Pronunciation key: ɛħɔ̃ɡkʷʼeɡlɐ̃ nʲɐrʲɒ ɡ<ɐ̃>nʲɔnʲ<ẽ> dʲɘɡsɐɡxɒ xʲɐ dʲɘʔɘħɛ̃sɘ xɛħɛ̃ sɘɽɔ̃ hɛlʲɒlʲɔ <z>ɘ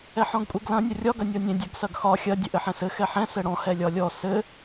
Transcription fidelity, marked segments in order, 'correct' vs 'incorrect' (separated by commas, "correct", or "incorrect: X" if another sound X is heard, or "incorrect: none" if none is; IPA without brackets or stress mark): incorrect: ɐ, correct, incorrect: s